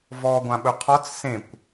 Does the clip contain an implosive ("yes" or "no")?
yes